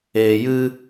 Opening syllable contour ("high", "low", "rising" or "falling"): low